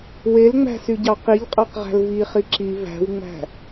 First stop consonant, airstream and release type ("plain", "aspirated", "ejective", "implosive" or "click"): plain